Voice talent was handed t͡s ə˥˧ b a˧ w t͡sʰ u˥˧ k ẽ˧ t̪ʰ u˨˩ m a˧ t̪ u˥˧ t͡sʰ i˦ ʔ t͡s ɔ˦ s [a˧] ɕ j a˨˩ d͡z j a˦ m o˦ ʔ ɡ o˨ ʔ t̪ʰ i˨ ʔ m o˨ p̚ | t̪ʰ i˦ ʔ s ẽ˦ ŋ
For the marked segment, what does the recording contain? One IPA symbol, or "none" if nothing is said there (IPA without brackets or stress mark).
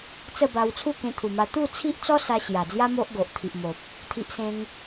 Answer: a˧